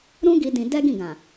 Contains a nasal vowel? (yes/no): yes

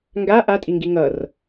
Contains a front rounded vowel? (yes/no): no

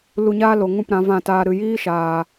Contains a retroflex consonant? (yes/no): no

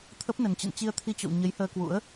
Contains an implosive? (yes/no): no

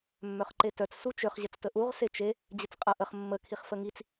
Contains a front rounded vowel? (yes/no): yes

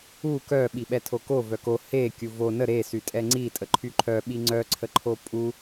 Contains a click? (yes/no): yes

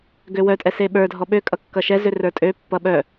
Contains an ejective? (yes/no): yes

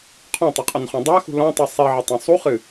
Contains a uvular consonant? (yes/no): yes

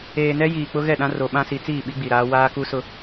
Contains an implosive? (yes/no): yes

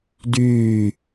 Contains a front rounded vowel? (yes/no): yes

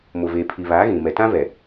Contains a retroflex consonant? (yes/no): no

